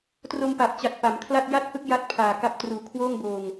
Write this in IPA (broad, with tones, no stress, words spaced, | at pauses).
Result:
tro˧mpa˨˩p̚t͡ɕa˨˩t̚ pa˩˦mkʰla˥˩t̚ ja˥˩t̚hɯ˥˩k̚ ja˥˩t̚pʰaː˨˩ka˦˥p̚ truː˩˦kʰwoː˥˩ŋ boː˧ŋ